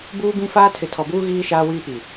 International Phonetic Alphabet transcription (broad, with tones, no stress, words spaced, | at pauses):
buː˦bĩ˦faː˦ tʰɪ˨tʰɔ˨buː˦ ɣiː˦ ʃaː˦wiː˦pi˨